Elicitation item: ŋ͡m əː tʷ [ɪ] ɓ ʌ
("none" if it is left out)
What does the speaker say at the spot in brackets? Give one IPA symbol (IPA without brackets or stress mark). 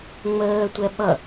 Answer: ɛ